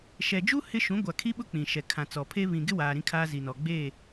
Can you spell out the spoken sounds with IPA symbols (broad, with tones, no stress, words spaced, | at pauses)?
ʃɛ˨d͡ʒu˦ hɪ˦ ʃũ˨˦ɡʷa˨ kʰi˦ɓʊ˦ k͡pĩ˨ʃɛ˨kʰã˨ t͡sɔ˨pʰe˦ βĩ˨ɡɪ˦waː˨ ɾĩ˦kʰaː˦zi˨nɔ˨ ɡ͡be˦˨